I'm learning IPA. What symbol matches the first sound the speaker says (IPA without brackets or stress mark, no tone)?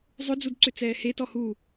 zˤ